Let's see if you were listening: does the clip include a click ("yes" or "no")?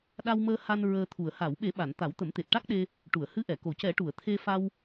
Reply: no